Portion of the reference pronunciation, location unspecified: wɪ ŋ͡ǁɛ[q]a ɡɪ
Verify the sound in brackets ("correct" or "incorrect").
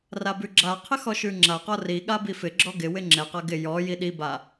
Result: correct